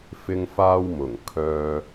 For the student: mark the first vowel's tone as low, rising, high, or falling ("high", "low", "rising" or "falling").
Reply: high